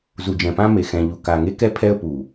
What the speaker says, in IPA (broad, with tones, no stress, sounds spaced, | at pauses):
z u˨ d͡ʒ ɛ̃˨ p ã˦ m e˨ x ɛ̃˨ ʎ u˨ k a˨ ŋ e˦ k ɛ˦ pʰ ɛ˦ ə̯ p u˨